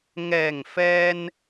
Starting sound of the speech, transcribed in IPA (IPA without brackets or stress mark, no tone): ŋ